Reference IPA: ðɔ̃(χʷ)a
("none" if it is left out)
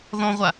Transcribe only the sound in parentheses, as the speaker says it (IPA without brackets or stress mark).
ʁʷ